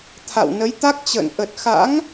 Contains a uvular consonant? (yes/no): no